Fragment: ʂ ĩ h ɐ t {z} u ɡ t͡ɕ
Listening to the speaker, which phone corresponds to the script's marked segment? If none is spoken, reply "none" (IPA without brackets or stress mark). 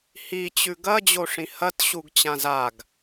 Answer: ɕ